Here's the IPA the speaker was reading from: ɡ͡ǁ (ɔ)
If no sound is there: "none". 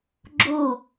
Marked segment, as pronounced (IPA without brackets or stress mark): o